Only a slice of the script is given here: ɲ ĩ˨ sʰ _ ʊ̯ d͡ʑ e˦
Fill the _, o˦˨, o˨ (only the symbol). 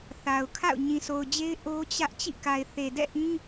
o˨